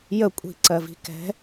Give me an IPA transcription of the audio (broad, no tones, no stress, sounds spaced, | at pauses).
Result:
j ə kʷʼ i̤ ǀ ɜ v i̤ k ɛ̤